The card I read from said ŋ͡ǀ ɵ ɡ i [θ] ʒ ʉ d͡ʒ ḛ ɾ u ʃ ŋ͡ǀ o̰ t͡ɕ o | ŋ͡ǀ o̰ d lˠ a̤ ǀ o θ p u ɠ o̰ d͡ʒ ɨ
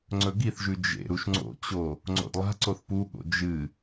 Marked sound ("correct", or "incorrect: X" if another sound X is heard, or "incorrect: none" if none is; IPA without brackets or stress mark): correct